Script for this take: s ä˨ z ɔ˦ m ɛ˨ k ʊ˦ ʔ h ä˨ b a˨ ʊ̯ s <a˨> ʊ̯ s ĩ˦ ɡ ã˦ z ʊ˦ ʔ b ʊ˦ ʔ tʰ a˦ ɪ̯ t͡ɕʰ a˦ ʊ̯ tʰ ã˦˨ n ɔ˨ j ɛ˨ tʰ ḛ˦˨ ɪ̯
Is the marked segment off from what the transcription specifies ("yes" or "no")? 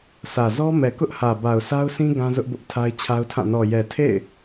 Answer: yes